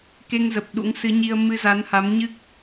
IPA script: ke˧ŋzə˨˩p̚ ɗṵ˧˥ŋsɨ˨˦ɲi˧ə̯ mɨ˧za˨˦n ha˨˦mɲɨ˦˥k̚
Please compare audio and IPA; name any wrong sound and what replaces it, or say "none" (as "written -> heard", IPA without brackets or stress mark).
none